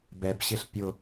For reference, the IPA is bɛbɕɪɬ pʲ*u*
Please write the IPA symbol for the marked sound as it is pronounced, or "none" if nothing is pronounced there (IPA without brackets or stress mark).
ʊ